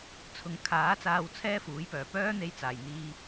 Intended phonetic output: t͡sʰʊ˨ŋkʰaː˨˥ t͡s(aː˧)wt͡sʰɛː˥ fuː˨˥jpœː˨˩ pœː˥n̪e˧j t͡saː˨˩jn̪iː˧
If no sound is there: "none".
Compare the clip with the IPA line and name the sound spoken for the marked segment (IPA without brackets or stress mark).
aː˧